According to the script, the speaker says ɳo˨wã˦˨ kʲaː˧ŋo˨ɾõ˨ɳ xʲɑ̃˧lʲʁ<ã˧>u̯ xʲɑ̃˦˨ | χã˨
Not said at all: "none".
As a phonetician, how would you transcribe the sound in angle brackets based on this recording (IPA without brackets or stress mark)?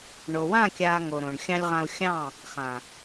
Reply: ã˧